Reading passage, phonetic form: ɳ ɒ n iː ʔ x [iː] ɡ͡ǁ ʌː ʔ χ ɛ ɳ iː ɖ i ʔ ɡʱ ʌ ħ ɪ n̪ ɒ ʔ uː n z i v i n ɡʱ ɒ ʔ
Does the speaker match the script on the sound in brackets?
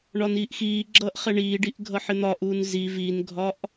yes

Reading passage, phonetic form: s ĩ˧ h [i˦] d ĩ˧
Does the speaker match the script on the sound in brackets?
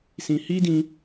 yes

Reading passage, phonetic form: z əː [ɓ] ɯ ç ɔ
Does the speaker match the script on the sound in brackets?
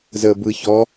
no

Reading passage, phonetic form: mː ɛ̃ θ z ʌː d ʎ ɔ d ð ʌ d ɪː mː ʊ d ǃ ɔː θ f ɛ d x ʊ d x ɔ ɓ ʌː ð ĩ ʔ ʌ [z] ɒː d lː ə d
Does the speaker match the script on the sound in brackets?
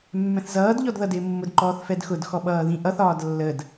no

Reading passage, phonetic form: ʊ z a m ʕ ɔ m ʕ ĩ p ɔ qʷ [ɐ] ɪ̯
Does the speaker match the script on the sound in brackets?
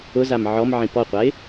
no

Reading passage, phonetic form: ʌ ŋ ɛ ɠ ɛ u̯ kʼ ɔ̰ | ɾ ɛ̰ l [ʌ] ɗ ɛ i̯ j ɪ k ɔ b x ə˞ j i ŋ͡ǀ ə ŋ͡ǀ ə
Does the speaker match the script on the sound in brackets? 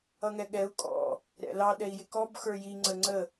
no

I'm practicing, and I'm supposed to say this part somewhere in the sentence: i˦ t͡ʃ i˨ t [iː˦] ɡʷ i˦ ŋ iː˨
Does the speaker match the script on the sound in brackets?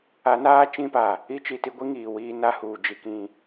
no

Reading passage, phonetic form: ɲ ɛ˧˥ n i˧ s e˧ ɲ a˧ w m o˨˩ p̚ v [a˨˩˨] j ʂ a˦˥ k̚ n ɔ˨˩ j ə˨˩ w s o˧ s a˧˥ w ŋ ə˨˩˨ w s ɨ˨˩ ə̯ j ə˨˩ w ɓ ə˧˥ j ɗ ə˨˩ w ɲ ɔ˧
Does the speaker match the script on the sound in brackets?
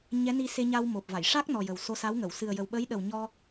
yes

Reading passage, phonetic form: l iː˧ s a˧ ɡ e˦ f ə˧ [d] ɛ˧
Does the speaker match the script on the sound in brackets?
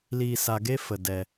yes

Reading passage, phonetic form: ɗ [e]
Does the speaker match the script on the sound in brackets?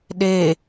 yes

